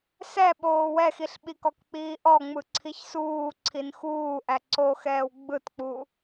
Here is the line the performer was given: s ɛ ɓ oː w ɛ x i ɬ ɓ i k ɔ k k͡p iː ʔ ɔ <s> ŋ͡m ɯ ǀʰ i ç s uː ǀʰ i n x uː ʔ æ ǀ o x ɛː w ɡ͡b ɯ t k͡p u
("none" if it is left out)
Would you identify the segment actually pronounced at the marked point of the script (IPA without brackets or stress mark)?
none